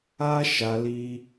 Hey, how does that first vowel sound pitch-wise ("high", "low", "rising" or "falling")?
high